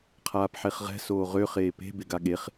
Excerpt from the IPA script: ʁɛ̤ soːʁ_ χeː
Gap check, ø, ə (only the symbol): ø